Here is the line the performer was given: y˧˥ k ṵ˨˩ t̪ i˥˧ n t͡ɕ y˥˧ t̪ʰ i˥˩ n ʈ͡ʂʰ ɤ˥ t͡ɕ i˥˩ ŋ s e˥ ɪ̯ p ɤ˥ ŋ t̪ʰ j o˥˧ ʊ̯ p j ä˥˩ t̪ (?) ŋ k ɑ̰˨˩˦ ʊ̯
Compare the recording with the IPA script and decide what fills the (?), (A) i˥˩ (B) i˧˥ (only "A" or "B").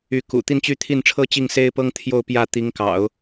B